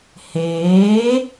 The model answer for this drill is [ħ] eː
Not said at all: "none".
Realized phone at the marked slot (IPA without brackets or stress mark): h